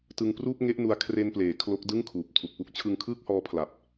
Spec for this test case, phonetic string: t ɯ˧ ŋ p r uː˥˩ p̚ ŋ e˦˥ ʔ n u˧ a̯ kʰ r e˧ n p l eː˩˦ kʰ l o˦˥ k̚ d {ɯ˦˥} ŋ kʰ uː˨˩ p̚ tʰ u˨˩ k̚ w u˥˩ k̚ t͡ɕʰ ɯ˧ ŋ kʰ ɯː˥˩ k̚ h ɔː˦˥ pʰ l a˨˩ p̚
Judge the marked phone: incorrect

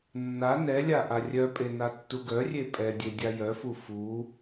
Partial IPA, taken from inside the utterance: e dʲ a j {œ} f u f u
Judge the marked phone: correct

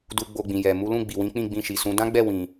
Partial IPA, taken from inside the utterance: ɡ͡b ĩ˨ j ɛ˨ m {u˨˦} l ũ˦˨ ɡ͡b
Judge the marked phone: correct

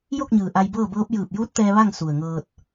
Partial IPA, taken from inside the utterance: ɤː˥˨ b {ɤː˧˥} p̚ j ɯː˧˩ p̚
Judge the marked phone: correct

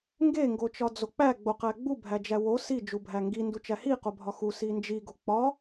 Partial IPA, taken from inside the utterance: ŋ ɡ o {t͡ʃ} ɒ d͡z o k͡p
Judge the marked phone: correct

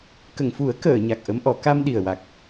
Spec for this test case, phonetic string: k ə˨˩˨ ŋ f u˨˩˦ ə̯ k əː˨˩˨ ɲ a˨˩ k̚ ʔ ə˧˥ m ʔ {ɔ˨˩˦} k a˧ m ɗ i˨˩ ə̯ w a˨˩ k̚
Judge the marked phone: correct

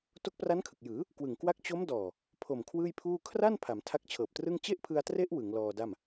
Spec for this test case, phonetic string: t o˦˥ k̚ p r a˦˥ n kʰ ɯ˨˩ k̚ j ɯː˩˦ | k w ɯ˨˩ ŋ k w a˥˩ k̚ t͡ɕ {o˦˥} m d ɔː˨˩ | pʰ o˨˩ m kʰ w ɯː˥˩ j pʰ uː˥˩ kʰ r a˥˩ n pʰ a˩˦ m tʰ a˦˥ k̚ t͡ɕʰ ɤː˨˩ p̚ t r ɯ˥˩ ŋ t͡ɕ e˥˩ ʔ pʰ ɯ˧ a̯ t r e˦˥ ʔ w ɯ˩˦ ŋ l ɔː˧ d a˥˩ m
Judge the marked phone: correct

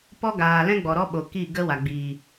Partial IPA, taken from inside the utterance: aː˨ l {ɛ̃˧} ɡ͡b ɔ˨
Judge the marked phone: incorrect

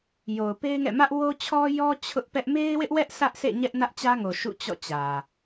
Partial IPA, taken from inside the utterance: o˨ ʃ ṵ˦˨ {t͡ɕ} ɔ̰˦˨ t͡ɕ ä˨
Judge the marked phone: correct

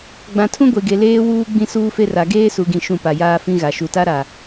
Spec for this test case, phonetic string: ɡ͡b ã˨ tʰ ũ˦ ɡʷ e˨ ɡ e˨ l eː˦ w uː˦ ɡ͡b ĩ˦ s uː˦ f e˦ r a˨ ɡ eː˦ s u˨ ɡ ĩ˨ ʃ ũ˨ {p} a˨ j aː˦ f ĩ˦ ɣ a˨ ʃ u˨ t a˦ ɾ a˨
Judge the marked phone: correct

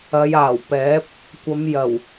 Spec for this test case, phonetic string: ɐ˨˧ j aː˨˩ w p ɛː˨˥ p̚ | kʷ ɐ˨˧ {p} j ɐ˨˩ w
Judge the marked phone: incorrect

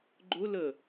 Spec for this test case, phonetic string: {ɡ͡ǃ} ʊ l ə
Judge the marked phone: correct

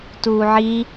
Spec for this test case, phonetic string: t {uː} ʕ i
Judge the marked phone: correct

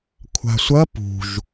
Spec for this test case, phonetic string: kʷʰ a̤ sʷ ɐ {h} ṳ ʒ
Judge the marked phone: incorrect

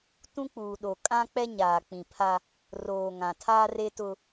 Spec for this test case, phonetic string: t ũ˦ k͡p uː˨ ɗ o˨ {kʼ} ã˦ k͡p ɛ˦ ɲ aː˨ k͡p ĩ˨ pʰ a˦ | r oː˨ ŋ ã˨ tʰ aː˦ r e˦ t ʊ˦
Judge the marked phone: correct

